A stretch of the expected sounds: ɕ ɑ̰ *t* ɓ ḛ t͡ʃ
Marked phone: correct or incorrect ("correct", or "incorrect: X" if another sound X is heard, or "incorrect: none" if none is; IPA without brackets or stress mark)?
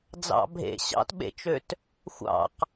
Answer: correct